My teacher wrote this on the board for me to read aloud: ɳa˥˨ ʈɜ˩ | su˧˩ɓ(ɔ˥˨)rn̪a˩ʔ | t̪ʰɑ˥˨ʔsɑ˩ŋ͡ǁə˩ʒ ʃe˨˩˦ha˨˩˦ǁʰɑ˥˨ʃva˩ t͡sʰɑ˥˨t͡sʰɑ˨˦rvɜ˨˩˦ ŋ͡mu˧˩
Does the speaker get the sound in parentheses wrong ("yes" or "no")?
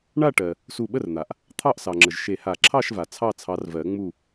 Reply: yes